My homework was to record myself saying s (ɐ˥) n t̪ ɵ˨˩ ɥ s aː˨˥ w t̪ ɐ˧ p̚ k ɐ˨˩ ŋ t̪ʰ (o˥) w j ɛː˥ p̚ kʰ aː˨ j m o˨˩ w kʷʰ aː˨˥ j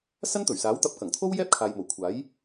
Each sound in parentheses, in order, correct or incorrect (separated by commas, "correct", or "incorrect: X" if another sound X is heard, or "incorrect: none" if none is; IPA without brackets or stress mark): correct, correct